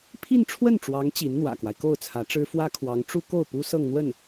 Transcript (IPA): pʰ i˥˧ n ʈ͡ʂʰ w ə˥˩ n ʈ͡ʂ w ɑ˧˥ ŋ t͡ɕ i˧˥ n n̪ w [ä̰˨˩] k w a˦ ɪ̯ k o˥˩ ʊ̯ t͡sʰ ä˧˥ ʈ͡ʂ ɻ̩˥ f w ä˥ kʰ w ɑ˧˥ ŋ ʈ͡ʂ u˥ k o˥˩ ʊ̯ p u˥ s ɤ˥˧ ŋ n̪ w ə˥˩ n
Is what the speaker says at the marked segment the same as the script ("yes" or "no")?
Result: yes